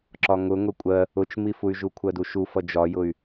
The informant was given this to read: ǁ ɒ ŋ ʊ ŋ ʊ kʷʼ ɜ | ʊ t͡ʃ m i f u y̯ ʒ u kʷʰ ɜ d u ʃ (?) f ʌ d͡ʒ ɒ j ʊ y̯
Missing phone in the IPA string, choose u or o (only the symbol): u